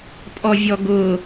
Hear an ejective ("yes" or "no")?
yes